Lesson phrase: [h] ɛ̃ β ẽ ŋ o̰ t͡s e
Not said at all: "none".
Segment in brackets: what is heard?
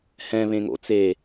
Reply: h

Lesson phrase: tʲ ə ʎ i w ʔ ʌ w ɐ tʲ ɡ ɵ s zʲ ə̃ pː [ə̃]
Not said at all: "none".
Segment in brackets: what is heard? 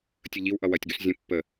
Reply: ə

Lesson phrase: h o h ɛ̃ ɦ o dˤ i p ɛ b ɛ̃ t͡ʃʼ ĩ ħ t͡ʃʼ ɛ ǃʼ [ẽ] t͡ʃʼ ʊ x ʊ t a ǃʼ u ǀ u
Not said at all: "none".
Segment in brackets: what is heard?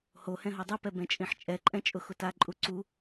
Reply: ɛ̃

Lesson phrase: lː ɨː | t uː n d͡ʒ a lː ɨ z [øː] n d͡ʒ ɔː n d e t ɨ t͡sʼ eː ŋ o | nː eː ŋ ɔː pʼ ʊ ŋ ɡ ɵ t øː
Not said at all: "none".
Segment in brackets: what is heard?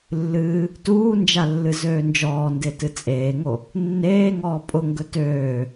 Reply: øː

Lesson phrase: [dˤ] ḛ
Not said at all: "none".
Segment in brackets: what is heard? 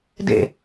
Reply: d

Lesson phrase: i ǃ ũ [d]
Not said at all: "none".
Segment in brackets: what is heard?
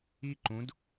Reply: d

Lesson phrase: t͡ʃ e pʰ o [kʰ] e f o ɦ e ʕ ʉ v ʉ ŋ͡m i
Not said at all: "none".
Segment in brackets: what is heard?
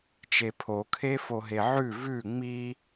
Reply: kʰ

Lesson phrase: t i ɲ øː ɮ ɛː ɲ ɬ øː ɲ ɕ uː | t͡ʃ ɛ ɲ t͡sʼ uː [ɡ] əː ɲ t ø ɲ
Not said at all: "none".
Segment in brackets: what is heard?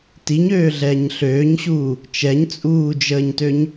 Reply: d͡ʒ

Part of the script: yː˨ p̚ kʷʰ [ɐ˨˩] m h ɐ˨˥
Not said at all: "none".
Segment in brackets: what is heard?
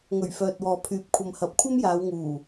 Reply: ɐ˨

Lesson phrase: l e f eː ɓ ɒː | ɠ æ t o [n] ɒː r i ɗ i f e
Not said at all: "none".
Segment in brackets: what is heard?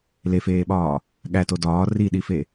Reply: d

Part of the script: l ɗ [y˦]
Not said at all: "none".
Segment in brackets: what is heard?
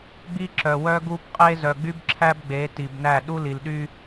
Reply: y˦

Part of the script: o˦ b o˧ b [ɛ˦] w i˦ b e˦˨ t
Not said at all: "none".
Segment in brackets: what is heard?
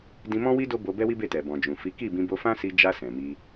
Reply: ɛ˦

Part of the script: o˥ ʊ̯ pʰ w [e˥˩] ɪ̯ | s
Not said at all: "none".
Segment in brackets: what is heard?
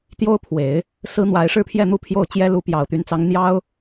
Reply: e˨˩˦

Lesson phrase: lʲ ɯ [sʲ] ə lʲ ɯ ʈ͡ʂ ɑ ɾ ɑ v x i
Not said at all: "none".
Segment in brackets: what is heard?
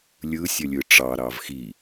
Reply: sʲ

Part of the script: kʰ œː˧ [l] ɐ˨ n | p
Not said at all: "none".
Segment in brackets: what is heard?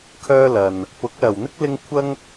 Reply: l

